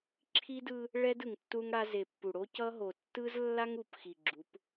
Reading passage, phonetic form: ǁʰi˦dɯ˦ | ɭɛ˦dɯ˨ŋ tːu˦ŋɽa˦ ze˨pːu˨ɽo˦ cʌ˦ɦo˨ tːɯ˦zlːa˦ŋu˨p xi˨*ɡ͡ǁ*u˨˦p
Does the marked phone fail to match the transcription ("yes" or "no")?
no